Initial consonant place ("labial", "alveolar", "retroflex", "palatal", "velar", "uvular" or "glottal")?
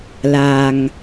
alveolar